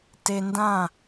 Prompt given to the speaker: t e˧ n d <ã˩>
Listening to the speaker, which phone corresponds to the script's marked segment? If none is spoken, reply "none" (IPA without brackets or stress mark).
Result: ã˥˩